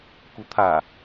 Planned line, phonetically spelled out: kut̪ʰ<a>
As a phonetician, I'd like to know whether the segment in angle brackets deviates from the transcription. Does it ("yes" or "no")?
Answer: no